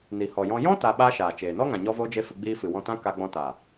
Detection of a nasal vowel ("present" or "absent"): present